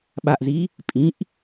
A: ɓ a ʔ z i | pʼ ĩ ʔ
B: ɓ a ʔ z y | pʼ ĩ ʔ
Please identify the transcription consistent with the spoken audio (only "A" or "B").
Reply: A